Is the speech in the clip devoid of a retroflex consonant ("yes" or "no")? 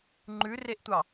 yes